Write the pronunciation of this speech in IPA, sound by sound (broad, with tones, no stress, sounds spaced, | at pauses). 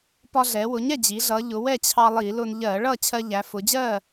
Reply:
p ɒ˧ ɮ ɛ˩˧ w ʊ˩˧ ɲ ɛ˥˨ d͡ʑ i˩˧ ɮ ʌ˩˧ ʎ ʊ˩˧ w ɛ˥˨ t͡ɕʰ ɑ˧ lˠ i˧˩˧ l ʊ˧ n ʎ ɜ˧˩˧ ɭ ʌ˥˨ t͡ɕʰ ɜ˧ ʎ æ˩˧ f ʊ˩˧ d͡ʑ ɜ˥˨